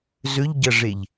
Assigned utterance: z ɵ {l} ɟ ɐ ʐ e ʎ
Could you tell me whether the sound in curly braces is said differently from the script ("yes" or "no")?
yes